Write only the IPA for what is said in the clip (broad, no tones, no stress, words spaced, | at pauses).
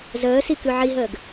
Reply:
zəːsi kʉʕiɦəːɡ